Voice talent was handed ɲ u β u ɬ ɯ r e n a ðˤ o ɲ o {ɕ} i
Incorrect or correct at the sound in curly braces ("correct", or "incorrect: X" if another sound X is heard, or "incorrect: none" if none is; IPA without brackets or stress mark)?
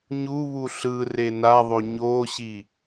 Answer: correct